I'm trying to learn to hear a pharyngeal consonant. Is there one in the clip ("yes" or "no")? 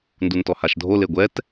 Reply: no